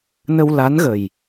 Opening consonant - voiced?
yes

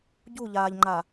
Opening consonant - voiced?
yes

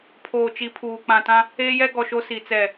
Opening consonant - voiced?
no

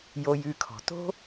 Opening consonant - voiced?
yes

